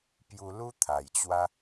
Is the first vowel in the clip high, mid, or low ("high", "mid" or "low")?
high